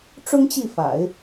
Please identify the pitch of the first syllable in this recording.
high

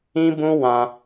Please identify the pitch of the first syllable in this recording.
high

